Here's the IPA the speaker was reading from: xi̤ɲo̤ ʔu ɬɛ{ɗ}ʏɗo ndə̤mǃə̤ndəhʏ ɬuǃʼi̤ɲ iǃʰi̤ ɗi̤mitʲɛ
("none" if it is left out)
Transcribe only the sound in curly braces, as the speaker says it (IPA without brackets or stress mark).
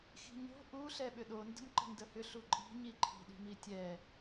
ɓ